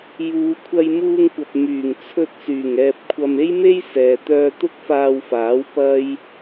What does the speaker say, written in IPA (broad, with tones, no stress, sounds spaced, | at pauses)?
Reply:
j uː˨˧ kʷʰ ɐ˧ j m uː˧ ŋ kʷ ɐ˨ p̚ m yː˨˩ ŋ t͡sʰ ɵ˧ t̚ s yː˨˩ ŋ ɛː˧ p̚ kʷʰ ɐ˧ m e˥ j m e˥ j s ɛː˨ t̪ œː˧ t̪ ʊ˥ k̚ f aː˧ w f aː˨˥ w p ɐ˥ j